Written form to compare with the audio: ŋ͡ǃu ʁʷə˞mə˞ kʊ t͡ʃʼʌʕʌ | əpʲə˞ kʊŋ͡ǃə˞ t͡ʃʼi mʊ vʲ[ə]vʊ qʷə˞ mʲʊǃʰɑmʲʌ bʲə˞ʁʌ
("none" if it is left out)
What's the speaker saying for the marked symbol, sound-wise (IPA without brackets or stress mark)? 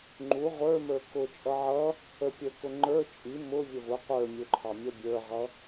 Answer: ə